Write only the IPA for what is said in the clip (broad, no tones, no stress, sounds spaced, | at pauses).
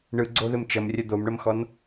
ɳ ɯ ɡ͡ǀ o ð ɘ m t͡ʃ ɐ m rʲ ɐ d̪ o m ɳ ɐ m x ɔ n